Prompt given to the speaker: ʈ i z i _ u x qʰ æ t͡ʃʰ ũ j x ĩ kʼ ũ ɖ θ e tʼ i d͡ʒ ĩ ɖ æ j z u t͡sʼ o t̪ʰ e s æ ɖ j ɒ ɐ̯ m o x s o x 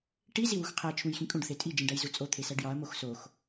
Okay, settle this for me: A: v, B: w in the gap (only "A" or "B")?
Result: B